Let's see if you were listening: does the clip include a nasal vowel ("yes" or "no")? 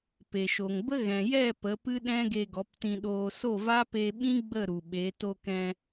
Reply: yes